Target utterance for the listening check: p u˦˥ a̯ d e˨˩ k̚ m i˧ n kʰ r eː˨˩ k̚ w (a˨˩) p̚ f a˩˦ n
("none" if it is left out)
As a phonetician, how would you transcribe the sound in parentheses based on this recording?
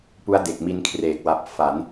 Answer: a˨˩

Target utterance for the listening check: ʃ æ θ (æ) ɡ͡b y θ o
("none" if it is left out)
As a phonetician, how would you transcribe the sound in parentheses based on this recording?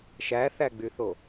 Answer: æ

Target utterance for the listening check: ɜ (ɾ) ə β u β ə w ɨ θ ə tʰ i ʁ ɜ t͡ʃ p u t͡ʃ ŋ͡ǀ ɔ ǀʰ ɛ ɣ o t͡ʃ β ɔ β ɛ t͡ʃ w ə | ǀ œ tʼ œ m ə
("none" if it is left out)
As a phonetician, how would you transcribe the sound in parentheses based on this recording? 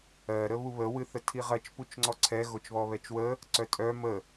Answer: ɾ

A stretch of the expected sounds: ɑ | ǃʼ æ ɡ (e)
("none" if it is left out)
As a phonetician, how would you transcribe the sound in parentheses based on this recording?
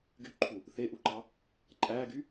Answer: y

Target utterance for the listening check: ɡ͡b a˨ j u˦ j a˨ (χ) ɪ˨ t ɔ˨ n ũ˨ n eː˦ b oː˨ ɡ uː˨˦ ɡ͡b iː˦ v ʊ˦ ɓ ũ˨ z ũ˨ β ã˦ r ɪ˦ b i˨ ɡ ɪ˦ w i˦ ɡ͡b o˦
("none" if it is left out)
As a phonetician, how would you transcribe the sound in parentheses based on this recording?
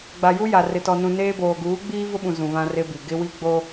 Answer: r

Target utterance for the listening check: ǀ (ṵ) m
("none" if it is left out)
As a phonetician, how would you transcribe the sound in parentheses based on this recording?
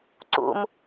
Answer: ṵ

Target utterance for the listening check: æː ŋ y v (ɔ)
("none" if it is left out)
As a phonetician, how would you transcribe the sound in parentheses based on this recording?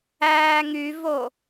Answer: o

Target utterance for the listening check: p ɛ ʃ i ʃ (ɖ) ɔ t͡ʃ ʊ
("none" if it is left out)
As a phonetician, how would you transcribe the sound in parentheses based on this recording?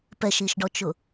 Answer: ɖ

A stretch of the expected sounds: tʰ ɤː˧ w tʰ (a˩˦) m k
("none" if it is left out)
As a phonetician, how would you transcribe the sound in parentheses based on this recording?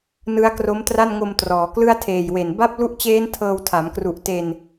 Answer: a˩˦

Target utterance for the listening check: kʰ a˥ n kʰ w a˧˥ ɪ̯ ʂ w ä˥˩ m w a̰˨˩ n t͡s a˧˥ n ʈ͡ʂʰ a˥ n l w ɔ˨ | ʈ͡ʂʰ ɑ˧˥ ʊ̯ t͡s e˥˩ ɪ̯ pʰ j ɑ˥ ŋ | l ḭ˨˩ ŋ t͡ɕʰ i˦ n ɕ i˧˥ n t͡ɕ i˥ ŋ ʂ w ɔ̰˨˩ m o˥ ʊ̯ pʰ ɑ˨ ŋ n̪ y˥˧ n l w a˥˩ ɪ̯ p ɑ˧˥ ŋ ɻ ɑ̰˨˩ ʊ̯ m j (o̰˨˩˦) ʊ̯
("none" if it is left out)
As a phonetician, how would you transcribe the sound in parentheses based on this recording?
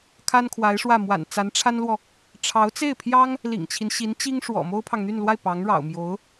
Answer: o˧˥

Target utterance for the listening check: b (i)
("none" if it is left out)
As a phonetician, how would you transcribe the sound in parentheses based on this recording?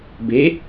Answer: e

